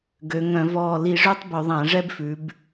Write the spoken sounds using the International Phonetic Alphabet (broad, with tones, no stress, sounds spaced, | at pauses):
ɡ ø˩˧ ŋ œ̃˧˩˧ v ɔː˧˩ l i˧˩˧ ʐ ø˦˥ tˤ b ɵ˧˩˧ ðˤ æ̃˧˩˧ ʐ ɛ˦˥ b f ʉ˩˧ b